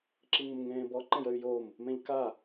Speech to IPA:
ǁ i ŋ ə m ŋ ẽː b ɔ ǃ ẽ j ə y̯ j o m | m ẽ ʎ k a

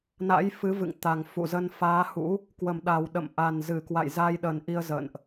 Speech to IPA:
n a̰˧˥ j f ɨ˨˦ v ɨ̰˧˨ ŋ t̪ a˨˩ ŋ f ṵ˧˨ z ə˧ n f aː˨˦ h ṵ˧˥ | k w ə˨˩ m ɗ a˨˩ w ɗ ə̰˧˨ m ʔ a˨˩ n z ɨ˧˩ k w a̰˧˨ j z a˧ j ɗ ə˨˩ n ʔ i˧ ə̯ z ə̰˧˨ n ʔ

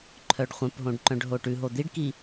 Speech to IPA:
ǃʰ œ ɖ χʷ œ̃ p ɦ õ ɖ ǃ œ̃ ɖ ɦ o ʈ ʉ ɦ o d̪ i ɖ k i

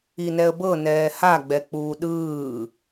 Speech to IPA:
i n ɛ ə̯ b ɤ n ɛː h a ɡ͡b ɛ k͡p uː ɗ ɯː

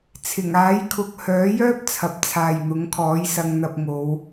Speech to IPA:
t͡sʰ ɪ˨˩ ŋ aː˨˥ j kʰ ʊ˨ k̚ h œː˨˥ j œː˥ p̚ t͡sʰ ɐ˨ p̚ t͡sʰ aː˨ j n̪ ʊ˨˥ ŋ kʰ ɔː˨˥ j s ɐ˧ ŋ n̪ ɐ˧ p̚ ŋ o˨˧ w

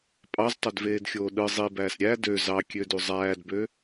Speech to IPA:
pʼ ɑ z tˤ ø d v eː d xʲ oː ɗ ɯ zˤ i b æː s ɾʲ æ d ø z ɑ kʲ ø d u zˤ æː d b ø

